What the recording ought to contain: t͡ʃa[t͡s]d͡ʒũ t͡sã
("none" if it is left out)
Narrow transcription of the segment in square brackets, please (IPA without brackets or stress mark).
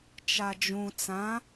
none